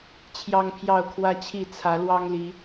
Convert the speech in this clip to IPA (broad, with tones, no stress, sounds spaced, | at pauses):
t͡ɕʰ j ɑ˦ ŋ pʰ j ɑ˥˨ ʊ̯ kʰ w ä˦ t͡ɕʰ i˥˨ t͡sʰ ä˨˦ l w ɑ˦ ŋ l i˨˦